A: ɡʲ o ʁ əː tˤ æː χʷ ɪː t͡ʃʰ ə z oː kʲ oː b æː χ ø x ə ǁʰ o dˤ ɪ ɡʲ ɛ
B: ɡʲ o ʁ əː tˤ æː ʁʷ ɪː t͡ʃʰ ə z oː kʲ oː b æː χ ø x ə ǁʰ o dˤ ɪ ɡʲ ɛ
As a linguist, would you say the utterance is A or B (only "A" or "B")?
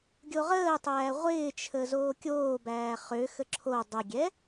B